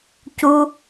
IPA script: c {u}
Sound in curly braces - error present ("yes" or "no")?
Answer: no